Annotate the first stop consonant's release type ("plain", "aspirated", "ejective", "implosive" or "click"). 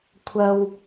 aspirated